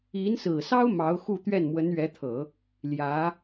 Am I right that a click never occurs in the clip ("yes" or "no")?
yes